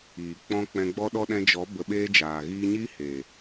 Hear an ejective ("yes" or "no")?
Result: no